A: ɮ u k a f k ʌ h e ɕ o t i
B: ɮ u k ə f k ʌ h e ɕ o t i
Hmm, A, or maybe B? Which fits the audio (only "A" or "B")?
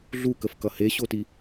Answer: B